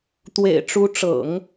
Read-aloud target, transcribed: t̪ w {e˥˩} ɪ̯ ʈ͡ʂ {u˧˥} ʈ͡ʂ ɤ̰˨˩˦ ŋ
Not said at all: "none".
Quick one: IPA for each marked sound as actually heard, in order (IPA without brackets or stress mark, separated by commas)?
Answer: ḛ˨˩, u˧˥